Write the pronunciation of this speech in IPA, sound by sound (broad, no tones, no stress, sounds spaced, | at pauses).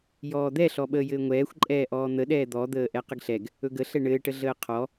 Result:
j ɔː d̪ ɛ ɬ ɔ ɓ əː j ɘː ŋʷ ɛː xʷ ǃʼ ɛː ʔ ɔː n̪ ə ɗ ɛː d̪ ɔ d̪ əː ʔ ɛ q ə ɡ ɬ ɛ ɡ | ɵ ɡ ə ɬ ɛ ɳ ɘː ʈ ə ɮ əː qʰ ɔ